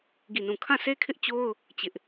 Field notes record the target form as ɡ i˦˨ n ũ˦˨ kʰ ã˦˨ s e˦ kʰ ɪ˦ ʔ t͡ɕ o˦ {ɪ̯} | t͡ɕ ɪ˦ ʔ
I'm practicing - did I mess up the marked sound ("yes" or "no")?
yes